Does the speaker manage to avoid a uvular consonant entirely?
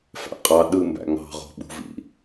no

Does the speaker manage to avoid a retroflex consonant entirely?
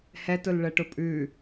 no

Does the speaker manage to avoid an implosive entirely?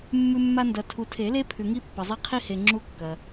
yes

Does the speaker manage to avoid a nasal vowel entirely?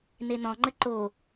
no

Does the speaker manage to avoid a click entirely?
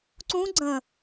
no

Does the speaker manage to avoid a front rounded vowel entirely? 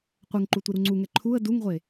yes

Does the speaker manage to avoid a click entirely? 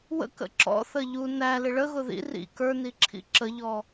no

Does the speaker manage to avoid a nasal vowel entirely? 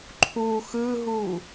yes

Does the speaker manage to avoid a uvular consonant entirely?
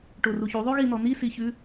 yes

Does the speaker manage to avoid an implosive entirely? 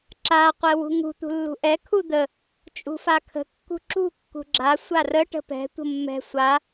yes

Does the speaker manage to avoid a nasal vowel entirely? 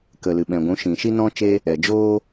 no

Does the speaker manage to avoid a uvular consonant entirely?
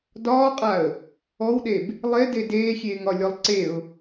no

